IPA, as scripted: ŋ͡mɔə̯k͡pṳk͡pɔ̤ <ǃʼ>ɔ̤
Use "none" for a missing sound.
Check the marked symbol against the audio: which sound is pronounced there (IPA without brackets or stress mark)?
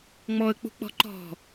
ǃ